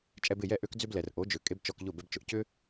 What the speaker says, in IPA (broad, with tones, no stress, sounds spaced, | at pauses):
t͡ʃʼ ɛ˧ b ɪ˥˩ j ɛ˥˩ ʔ ø˥ k d͡z ʏ˥ b l ɛ˩ r ʔ o˩˥ d͡ʒ ø˩ kʼ e˥ b t͡ʃ ɔ˧ k ʎ ʊ˥˩ b ɛ˧ b t͡ʃ ʊ˩ ʔ c ʏ˥